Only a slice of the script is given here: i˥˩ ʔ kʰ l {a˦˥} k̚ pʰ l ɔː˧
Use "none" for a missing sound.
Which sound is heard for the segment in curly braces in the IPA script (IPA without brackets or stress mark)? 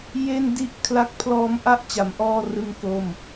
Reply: a˦˥